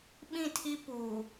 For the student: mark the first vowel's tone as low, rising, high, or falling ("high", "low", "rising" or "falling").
falling